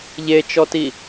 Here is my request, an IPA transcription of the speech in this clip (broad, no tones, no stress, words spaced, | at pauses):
ʎet͡ʃɔti